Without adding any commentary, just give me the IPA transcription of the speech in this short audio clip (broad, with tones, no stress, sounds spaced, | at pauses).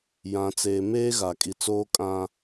j ã˨ t͡s eː˨ m eː˦ ɣ a˨ kʼ i˨ t͡s oː˦ kʼ ã˦